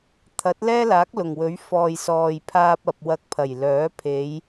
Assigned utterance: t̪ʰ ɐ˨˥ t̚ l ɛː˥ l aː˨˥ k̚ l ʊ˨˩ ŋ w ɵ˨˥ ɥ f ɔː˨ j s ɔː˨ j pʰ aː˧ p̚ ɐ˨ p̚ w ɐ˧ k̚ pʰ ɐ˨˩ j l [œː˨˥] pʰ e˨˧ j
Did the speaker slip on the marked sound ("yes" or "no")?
no